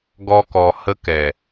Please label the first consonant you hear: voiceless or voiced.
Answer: voiced